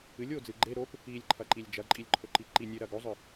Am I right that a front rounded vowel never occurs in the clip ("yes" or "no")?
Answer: yes